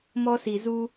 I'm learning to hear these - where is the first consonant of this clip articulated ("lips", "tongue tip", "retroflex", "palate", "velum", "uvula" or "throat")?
lips